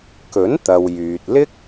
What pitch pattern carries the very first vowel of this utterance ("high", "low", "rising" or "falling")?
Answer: rising